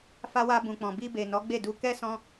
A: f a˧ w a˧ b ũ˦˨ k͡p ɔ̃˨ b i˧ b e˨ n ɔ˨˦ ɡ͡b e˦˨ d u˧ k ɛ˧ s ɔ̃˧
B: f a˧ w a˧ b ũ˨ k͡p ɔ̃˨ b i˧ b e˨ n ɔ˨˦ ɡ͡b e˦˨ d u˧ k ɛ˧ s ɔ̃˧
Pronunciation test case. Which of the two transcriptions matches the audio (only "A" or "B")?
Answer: B